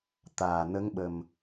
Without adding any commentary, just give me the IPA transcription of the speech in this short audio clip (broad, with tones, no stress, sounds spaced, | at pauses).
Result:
t̪ aː˨˩ n ə˧˥ ŋ ɓ ə˨˩ m